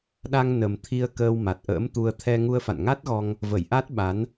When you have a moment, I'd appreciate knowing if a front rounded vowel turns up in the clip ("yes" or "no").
no